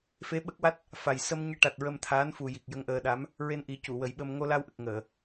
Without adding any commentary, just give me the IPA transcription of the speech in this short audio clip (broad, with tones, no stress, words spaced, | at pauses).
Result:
fe˧˥ɓə˦˥k̚wa˦˥t̚ | fa˨˩j sə˧m ɲe˧ʈa˨˩t̚ ɹə˧mt̪ʰaː˧˥n fu˨˩ ji˨˩k̚ jə˧ŋʔəː˧ɗa˧˥m | ɹe˧nʔi˨˩˦ cu˨˩˨wə˨˩˦jɓə˧m ŋo˧la˧wʔə˨˩k̚ ŋəː˨˩˨